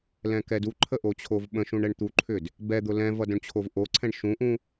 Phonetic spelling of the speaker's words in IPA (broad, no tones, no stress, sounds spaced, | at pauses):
l ɛ̃ k ɛ d u ǃʰ ə ʔ o t͡ɕʰ o v ɓ ə̃ ʃ ũ ɳ ɛ ɳ t̪ u ǃʰ ʏ d | b ɛ d̪ ʊ l ɛ̃ v ʌ d õ ɳ t͡ɕʰ o v ʔ o ǀʰ ɛ̃ ɳ ʃ ũ ʔ ũ